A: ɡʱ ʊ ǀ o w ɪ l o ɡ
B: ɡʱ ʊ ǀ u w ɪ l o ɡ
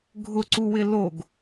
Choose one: B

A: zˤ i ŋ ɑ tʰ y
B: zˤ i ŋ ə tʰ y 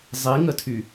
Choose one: B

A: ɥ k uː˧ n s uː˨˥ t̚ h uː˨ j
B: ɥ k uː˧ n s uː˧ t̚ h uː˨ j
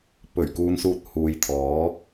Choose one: B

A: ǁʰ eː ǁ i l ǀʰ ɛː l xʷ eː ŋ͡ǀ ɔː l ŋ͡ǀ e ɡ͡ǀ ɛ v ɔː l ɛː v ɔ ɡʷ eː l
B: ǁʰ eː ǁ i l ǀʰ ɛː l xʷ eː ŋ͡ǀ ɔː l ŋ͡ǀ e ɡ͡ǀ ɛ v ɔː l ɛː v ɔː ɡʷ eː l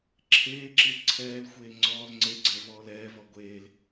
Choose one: A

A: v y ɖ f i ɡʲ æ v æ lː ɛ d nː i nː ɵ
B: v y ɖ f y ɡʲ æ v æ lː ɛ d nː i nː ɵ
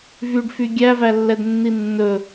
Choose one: B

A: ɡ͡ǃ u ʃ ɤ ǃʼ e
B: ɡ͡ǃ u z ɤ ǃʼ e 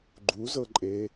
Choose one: B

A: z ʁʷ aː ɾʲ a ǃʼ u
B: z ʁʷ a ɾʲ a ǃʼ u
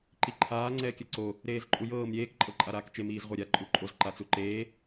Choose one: B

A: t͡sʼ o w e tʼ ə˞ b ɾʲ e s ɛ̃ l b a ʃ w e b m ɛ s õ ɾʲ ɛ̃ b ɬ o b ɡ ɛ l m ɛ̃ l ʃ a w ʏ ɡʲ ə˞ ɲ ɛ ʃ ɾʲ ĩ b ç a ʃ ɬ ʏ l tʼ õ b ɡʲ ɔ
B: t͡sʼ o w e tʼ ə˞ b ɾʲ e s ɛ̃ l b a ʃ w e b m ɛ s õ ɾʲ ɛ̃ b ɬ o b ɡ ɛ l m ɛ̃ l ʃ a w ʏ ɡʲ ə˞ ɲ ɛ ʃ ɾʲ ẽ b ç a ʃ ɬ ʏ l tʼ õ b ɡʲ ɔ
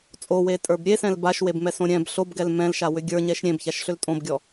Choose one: B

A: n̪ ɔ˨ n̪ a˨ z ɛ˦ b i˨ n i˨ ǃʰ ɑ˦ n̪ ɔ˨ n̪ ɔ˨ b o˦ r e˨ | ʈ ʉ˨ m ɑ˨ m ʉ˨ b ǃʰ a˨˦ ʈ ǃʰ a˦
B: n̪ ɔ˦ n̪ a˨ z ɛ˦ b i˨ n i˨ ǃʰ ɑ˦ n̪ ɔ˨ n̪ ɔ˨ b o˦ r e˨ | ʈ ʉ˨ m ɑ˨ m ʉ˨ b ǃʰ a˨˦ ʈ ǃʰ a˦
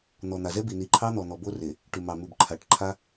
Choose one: A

